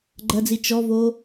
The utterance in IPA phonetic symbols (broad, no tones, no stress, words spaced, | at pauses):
ɡ͡ǃɐd͡zi t͡ʃɔvo